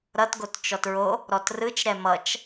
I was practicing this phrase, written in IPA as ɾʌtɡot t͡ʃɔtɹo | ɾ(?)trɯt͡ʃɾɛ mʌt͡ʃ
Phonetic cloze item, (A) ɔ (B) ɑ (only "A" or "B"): A